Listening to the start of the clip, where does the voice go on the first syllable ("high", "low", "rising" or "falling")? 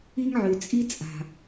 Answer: high